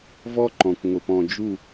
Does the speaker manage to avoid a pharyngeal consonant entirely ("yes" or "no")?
yes